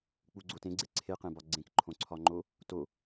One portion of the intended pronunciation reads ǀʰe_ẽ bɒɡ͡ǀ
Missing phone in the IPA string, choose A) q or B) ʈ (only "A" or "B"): A